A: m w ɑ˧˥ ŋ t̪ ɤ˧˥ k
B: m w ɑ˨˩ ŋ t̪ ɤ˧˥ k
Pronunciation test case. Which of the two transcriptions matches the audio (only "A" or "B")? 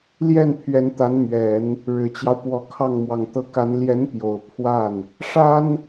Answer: B